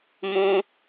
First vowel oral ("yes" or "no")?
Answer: no